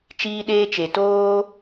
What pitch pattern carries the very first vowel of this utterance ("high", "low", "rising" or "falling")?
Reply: high